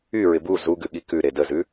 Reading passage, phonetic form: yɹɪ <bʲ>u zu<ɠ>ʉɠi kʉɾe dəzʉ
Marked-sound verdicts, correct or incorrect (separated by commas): incorrect, incorrect